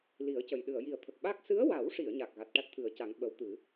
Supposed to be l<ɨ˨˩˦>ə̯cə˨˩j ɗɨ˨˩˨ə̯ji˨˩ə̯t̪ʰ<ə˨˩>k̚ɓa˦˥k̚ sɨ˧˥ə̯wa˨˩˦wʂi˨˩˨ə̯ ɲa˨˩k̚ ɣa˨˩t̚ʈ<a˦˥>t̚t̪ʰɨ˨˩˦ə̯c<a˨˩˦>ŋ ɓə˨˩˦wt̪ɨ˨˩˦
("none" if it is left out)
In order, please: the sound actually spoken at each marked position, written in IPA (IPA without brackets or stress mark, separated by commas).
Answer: i˨˩˦, ə˨˩, a˦˥, a˨˩˦